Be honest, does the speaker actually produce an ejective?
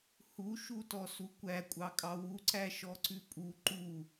yes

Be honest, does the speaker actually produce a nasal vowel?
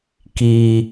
no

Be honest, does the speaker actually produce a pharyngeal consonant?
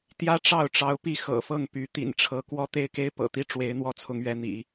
no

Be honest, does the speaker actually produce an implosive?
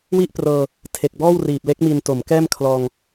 no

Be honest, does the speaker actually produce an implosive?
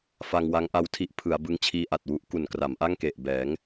no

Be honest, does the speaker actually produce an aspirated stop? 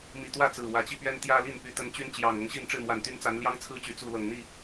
yes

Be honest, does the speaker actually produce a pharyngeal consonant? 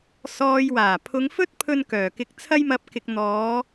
no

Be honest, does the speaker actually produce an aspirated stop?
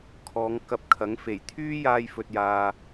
yes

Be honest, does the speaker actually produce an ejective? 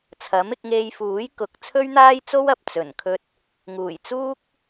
no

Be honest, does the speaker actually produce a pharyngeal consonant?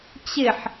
yes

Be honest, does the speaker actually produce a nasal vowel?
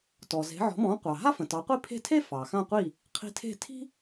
yes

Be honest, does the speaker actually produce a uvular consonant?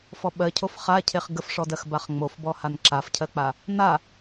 yes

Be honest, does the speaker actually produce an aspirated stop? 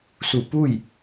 no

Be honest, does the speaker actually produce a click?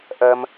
no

